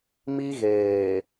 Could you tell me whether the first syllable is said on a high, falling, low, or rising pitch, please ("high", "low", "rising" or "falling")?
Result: high